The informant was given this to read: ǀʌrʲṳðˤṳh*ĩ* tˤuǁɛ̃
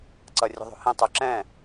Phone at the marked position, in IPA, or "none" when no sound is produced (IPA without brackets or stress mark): ĩ